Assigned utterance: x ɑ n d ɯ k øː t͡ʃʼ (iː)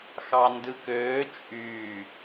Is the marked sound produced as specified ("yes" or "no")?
no